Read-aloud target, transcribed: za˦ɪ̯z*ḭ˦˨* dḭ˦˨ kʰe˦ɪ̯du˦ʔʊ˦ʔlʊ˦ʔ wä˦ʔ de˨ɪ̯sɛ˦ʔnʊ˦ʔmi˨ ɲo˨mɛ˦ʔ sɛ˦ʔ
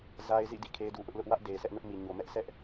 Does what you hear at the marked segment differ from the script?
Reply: no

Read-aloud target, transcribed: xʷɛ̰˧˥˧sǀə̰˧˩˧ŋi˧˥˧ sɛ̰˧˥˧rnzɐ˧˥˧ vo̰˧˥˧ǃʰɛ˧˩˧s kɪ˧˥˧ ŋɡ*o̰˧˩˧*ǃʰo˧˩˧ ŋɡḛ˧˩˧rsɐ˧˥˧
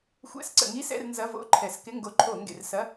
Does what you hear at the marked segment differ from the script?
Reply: yes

